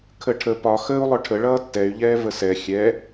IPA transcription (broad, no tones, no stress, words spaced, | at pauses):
kʰəʈʰə pɒ xəːu̯lˠʊʈʰə ɭʌːtːɛy̯ʎɛː vəsɛ xʲɛ